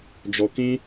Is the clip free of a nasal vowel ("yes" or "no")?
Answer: no